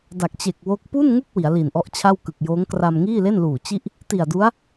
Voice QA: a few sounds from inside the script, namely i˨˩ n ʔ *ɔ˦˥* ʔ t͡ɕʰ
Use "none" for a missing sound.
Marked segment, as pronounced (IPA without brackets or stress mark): ɔ˦˥